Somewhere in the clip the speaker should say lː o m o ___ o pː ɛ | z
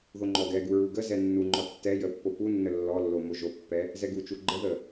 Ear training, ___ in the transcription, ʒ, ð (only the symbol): ʒ